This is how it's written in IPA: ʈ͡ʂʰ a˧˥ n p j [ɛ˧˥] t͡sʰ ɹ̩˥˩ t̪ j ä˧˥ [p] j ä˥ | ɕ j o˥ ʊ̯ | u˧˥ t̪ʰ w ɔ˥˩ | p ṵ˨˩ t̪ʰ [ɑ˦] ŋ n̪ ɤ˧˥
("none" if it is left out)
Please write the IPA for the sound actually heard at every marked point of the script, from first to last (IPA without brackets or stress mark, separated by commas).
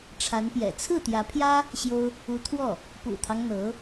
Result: ɛ̰˨˩, pʰ, ɑ˦